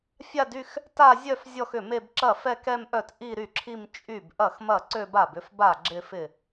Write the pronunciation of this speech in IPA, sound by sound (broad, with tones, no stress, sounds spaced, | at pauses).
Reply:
fʲ a˥˧ d y˥˧ x | t a˥˧ zʲ œ˥˧ f zʲ ɔ˥˧ x ʏ˥˩ m e˥˧ b ǁ ɐ˥˩ f ɛ˥˧ k ɛ˥˧ m ʔ œ˥˩ t ʔ i˥˧ ɾ y˥˩ ǁʰ i˥˧ m t͡ʃʼ y˥˩ b ʔ ɐ˥˩ x m ɐ˥˩ ǀ ø˥˧ b a˥˩ b ʏ˥˧ f b a˥˩ ɡ͡ǁ ɪ˥˧ f ɪ˥˩